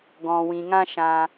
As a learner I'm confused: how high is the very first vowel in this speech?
mid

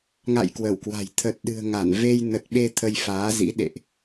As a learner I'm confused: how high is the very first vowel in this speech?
low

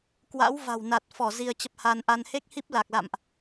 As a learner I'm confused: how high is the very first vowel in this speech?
low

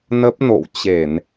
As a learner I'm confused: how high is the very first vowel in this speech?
mid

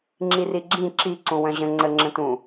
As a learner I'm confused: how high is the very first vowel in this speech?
high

